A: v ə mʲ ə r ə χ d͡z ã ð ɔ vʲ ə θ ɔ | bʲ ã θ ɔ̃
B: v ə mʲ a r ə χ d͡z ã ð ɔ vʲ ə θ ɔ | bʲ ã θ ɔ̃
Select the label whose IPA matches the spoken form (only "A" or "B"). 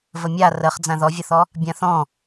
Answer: B